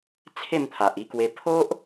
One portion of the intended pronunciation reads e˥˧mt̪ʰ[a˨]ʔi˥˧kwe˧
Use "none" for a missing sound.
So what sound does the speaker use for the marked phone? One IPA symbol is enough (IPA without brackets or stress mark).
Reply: a˨